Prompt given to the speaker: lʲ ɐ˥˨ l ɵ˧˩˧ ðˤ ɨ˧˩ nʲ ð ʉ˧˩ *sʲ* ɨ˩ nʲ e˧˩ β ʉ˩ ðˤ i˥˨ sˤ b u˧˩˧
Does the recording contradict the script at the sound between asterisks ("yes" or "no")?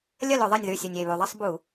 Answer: no